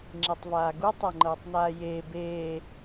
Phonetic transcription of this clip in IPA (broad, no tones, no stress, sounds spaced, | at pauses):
ŋ͡ǁ i tˤ v aː ɡ u tˤ ɤ ŋ͡ǃ ɤː tˤ n aː j eː b eː